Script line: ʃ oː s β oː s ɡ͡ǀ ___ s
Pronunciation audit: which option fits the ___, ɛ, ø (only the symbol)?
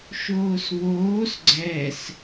ɛ